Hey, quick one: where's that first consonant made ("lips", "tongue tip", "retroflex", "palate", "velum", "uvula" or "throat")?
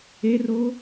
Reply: tongue tip